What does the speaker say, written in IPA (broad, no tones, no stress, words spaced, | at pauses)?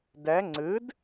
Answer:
dɛ ŋ͡ǀɨd